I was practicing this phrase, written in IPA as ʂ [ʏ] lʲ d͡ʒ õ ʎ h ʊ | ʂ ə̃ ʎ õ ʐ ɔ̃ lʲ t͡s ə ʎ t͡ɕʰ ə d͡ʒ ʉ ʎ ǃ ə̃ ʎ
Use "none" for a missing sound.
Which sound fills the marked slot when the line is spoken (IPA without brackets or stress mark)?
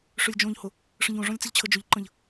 ʏ